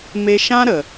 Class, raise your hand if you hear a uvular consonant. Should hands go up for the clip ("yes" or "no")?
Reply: no